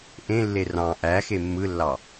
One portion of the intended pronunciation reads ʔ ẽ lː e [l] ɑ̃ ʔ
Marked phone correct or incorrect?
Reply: incorrect